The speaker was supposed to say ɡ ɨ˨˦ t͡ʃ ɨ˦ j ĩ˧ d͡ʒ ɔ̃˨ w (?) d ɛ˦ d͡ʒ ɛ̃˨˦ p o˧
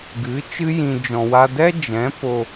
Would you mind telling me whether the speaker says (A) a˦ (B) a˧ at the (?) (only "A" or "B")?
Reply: B